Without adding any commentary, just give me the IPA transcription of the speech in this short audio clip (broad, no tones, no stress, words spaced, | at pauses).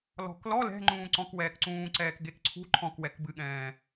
lɔ̤klɔ lɛ̤ ŋ͡ǃũːǀɔ̃k wɛːkǀũːǀɛːk ɡekǀʰṳ ǃʰɔ̃kwɛk bɨɠɛ̃ː